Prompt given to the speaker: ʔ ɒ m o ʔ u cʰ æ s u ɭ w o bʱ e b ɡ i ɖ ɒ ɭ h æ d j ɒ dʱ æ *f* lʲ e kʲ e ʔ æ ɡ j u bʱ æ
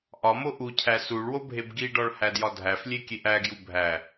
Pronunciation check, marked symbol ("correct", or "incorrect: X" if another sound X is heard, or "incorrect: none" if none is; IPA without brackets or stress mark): correct